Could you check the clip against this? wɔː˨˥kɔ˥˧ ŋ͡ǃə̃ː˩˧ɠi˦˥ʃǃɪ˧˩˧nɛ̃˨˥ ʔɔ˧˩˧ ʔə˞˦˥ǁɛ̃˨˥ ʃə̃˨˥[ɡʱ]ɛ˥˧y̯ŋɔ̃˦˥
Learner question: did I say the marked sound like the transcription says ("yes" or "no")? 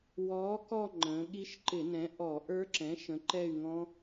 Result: no